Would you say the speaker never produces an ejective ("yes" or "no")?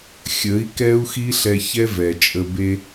no